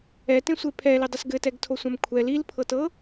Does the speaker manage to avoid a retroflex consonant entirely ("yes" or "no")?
yes